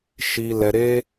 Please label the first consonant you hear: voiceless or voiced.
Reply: voiceless